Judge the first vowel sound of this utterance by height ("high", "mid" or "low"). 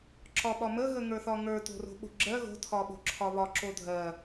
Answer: low